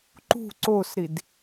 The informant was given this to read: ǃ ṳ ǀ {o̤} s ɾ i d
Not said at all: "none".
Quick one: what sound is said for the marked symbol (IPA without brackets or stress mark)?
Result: o